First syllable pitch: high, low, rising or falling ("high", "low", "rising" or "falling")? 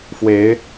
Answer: rising